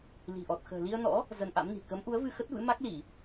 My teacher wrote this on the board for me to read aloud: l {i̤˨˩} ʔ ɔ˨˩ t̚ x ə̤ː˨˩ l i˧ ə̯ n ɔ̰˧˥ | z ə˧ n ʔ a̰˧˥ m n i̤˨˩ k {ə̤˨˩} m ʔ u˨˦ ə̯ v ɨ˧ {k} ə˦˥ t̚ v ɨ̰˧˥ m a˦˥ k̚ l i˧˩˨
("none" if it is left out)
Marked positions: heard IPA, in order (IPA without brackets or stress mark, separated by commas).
i̤˨˩, ə˨˦, x